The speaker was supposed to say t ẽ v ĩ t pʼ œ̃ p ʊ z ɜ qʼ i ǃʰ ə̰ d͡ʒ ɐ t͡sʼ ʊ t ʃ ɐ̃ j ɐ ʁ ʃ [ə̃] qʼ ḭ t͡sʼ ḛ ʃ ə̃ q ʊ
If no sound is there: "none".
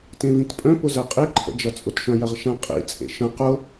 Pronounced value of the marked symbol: ɐ̃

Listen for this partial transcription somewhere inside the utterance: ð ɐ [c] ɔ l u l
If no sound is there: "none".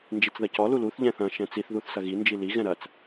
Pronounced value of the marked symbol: c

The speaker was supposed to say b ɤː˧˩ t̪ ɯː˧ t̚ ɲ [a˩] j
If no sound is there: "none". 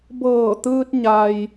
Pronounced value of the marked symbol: a˩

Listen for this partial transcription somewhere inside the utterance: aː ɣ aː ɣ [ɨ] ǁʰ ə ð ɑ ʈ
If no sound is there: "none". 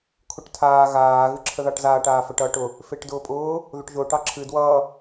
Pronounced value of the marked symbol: ɨ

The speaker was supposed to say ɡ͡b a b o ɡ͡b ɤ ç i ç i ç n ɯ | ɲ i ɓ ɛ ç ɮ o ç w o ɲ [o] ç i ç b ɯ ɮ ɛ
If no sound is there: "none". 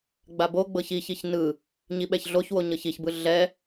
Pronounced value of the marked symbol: ɤ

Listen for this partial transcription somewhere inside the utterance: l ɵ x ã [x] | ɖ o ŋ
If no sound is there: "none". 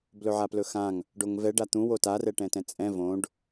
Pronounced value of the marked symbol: ŋ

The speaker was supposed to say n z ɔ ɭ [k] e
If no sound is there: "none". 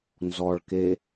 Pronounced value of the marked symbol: k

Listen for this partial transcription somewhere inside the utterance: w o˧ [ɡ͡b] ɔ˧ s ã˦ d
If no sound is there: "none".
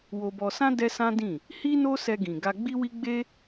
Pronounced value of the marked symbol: b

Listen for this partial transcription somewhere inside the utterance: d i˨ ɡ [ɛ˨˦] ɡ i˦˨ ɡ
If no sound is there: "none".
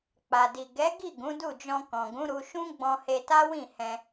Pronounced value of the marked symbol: ɛ˨˦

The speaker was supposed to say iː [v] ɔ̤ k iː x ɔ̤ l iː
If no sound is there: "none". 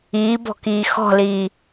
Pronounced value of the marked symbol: b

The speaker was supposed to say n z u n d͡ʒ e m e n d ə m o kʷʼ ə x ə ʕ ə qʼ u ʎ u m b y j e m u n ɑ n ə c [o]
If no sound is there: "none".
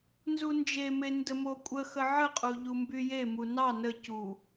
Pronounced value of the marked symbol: u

